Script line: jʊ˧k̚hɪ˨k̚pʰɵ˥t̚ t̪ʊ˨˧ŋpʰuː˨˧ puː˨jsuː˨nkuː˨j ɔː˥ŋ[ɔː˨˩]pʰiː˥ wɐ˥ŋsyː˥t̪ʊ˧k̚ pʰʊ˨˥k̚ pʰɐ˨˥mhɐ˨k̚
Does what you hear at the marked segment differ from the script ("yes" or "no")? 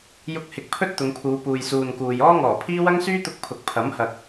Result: no